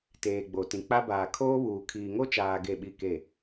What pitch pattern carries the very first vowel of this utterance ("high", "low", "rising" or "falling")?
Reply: low